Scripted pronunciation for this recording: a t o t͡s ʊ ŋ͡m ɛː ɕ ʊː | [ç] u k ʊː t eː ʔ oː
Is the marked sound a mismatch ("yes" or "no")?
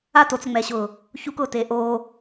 no